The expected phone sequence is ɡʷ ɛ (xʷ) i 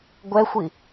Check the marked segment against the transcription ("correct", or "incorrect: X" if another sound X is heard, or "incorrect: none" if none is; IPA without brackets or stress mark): correct